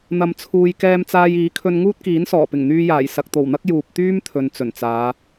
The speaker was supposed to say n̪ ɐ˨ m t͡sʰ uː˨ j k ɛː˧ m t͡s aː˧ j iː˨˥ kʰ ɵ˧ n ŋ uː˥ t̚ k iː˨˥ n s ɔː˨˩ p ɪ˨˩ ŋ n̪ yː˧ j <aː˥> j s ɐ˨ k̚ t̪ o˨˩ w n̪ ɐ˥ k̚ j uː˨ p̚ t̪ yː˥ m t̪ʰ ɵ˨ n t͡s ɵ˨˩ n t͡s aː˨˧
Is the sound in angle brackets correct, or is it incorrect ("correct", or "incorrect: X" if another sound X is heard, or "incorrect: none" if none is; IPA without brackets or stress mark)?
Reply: incorrect: aː˨˩